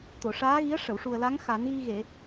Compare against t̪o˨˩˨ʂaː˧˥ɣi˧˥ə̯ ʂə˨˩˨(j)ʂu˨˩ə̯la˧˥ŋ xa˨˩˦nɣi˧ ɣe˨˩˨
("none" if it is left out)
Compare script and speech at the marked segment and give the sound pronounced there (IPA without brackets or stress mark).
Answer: w